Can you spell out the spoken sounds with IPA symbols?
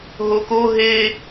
ɦ o k o ɦ e

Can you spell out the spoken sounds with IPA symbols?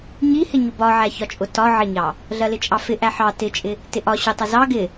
ɲ i h ɪ ɲ ʊ b ɒ ʕ æ ç ɒ t͡ʃʼ ʊ t ɒ ʕ ɪ ɲ ɑ | ɮ ɜ l ɪ t͡ʃʼ ɑ f ɪ ʔ æ ħ ɑ t ɪ t͡ʃʼ ɪ | t ɪ ʔ ɒ ɕ ʊ tˤ ɪ z ɑ ɡ ɪ

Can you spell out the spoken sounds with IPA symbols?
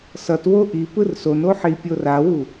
s ʌ t w o ʔ i p ɯ r s o n o ħ i pʲ o r a w u

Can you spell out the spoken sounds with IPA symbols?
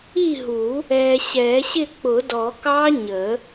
i˥˨ ɦ u˨˩˦ | ɛ˨ ɕ ɛ˨˩˦ ɕ ɪ˥˨ k͡p ʊ˨˩˦ d ɔ˨˩˦ k ɑ˦˥ ɲ ə˨˩˦

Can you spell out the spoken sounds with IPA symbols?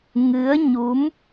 ŋ ɨ˨˦ ə̯ ɲ u˨˦ m

